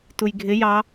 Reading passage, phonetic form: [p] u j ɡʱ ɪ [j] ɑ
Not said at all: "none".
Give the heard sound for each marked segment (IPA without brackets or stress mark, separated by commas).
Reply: t, j